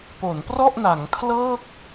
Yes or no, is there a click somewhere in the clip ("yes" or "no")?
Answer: no